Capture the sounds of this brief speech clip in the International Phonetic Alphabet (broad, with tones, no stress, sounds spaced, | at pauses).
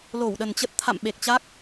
l o˧˩ w ɗ ə˨˩ n t͡ɕ ə˦˥ t̚ t̪ʰ a̰˧˨ m ɓ e˨˩ k̚ t͡ɕ a˦˥ k̚